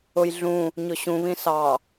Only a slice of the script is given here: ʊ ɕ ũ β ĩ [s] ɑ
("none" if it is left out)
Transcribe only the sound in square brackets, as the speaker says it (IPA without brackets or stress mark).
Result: s